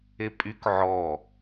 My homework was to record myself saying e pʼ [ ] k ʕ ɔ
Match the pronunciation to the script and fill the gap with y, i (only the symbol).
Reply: y